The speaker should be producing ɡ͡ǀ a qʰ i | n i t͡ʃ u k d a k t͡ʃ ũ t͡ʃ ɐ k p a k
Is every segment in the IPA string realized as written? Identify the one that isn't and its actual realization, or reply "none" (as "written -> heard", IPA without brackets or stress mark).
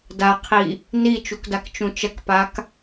ɡ͡ǀ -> d